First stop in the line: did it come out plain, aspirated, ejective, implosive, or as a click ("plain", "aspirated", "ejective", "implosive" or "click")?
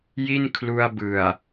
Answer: aspirated